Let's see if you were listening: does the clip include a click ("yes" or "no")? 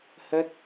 no